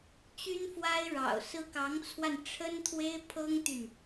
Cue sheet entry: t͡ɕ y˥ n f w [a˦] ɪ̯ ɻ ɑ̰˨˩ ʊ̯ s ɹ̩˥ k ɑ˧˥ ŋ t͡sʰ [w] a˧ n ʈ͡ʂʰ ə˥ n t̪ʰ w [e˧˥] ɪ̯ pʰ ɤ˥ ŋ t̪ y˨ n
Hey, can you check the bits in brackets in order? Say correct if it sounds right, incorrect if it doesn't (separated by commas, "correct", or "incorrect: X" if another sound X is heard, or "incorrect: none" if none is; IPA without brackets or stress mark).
incorrect: a˥, correct, incorrect: e˥